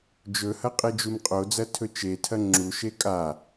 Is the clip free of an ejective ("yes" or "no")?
no